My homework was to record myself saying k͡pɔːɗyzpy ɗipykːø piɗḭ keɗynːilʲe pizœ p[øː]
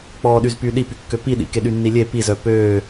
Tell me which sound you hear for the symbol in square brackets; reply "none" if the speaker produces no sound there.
øː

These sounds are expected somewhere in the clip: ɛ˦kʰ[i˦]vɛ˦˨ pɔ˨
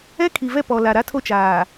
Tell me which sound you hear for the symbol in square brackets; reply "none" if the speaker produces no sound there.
i˨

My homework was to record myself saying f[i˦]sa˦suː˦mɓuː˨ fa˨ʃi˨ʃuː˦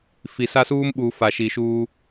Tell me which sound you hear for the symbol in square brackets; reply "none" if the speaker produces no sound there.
i˨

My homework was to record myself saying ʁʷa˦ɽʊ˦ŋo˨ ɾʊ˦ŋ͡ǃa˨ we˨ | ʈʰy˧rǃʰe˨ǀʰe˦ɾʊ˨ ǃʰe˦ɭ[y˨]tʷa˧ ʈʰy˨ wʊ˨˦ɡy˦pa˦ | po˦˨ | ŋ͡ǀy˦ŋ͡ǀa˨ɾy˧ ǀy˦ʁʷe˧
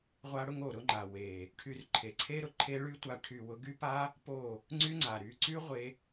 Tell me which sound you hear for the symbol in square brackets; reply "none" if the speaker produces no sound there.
y˦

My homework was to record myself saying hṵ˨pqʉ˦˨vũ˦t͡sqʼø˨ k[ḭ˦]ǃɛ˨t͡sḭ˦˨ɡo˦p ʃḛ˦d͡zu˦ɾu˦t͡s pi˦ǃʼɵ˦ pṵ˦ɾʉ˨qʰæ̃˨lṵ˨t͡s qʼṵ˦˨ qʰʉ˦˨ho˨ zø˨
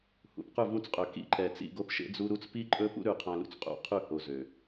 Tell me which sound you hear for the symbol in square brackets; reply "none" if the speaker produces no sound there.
ḭ˦˨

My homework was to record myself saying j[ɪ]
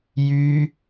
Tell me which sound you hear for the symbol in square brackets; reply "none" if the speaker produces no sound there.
y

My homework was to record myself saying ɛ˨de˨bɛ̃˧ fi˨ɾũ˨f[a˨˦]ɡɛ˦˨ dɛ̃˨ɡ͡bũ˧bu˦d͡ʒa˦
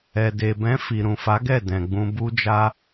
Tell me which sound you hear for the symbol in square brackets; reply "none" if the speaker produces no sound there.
a˨˦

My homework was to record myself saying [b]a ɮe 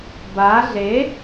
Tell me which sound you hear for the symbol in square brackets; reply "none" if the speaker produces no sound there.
b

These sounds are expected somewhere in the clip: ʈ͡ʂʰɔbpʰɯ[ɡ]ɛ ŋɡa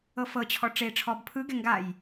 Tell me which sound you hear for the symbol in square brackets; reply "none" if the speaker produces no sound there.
ɡ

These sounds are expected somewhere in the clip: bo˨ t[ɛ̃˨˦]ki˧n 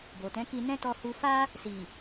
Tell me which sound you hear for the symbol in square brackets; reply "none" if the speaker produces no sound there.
ɛ̃˨˦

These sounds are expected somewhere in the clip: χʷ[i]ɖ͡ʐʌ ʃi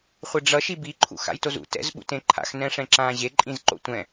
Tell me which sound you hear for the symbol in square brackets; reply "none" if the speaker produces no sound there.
e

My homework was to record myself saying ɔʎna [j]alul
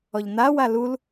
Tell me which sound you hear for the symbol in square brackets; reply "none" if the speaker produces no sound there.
w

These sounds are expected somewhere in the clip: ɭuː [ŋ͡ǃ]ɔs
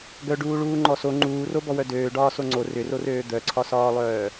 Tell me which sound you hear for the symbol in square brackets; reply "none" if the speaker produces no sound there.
ŋ͡ǃ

